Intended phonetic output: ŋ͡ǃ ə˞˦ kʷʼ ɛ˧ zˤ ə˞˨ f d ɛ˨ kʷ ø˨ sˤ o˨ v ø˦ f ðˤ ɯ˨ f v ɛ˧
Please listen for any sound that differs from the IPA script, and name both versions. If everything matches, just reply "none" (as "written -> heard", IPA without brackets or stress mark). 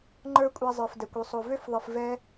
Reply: none